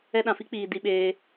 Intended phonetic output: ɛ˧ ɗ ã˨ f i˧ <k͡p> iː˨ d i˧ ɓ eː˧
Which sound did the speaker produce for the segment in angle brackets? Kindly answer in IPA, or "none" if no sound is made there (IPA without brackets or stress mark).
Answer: k͡p